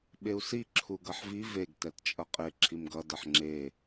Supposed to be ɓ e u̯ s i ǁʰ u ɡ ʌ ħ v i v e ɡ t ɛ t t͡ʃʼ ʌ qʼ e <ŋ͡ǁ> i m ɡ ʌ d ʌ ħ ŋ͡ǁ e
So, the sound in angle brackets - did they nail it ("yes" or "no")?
no